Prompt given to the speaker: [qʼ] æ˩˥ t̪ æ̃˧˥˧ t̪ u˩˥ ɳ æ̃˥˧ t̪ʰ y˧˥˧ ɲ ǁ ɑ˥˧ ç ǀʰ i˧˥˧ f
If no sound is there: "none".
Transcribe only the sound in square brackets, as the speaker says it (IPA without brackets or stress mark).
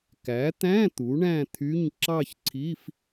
k